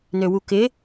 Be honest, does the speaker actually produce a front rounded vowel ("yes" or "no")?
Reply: yes